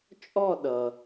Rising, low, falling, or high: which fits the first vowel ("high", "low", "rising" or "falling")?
falling